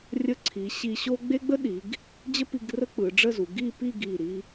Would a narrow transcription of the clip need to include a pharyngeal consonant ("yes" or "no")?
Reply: no